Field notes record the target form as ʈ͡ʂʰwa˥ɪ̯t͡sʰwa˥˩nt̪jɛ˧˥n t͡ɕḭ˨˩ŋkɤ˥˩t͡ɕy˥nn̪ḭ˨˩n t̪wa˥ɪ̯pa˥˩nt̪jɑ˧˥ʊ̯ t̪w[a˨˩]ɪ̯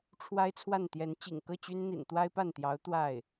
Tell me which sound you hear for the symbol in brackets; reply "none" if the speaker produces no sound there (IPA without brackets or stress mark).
a˥˩